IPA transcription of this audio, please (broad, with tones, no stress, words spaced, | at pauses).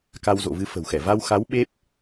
ka˧wzo̰˧˨vɨ˧ fə̤˨˩wxɛ˧˩ va˧wxa˨˦w ɓe˦˥p̚